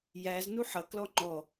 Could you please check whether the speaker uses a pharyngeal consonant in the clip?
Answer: yes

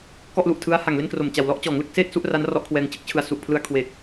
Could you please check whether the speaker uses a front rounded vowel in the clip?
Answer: no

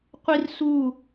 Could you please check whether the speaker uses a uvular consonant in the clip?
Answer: yes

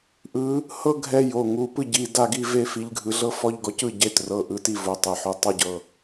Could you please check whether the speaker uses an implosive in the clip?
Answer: no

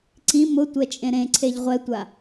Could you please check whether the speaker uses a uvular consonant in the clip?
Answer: yes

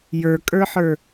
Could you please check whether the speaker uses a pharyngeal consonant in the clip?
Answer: yes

